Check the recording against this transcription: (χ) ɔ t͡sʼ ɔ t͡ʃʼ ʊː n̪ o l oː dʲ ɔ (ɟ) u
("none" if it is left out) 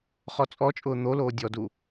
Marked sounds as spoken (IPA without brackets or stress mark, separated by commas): χ, d